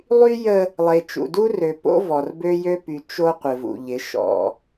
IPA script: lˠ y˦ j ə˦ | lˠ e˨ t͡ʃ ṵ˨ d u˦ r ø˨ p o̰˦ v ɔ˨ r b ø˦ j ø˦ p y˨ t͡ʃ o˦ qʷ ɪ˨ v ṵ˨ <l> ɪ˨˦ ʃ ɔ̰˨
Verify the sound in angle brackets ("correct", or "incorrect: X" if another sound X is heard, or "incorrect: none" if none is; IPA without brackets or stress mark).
incorrect: ʎ